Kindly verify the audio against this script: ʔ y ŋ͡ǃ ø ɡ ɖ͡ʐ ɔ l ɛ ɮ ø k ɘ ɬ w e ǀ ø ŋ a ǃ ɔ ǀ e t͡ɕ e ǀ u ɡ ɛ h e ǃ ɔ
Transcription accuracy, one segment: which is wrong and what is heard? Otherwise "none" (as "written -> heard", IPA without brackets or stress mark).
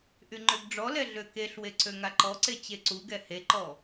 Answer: ɘ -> e